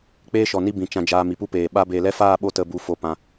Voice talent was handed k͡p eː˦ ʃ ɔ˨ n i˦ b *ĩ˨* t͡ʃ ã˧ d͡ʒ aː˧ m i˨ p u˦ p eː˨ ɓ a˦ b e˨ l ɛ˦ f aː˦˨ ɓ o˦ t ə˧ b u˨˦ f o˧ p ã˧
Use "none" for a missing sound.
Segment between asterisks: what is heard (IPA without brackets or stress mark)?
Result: ĩ˨